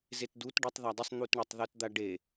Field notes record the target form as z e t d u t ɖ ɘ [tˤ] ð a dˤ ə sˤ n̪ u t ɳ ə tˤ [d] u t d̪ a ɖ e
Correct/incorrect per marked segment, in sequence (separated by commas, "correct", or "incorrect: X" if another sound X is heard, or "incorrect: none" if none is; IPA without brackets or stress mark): correct, incorrect: ð